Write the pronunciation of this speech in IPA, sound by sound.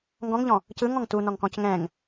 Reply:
ŋ ɡ ɔ̃ ŋ ʎ ɔ̃ | c ɯ ŋ ɔ̃ ŋ t u n ɔ ŋ k ɔ̃ c ŋ ɛ̃ ŋ

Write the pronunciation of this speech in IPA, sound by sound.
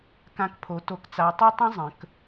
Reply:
k ã˨˥ k pʰ o˩˧ t o˨˥ k t͡s a˨˥ tˤ o˥ tˤ ə̃˥ zˤ ə̃˩˧ k

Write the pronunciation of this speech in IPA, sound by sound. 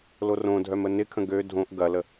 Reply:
l o r õ dʱ œ m ə n ɪ kʰ ə̃ ɡ ø dʱ õ ʔ ɡ ɐ l ə

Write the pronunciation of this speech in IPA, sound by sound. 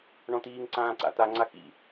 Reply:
ɳ ɔ̃ t̪ iː ŋ ǀ ãː ǀ a̰ t̪ a ŋ͡ǀ a x ḭ

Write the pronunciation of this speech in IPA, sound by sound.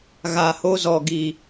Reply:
ɣ a˨ h o˦ z ɔ˨ ɡ i˨

